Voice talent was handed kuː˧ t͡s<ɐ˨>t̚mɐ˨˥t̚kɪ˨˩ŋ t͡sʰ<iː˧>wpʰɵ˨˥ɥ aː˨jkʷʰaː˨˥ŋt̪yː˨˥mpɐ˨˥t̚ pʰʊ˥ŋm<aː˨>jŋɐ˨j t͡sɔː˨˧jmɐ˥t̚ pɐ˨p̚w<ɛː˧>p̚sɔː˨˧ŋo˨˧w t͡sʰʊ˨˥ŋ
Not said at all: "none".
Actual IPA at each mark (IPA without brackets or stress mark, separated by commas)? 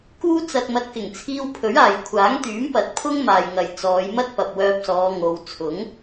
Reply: ɐ˨, iː˧, aː˨, œː˧